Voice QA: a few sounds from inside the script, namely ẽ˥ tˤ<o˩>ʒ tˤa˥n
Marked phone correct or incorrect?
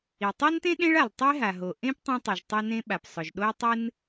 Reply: correct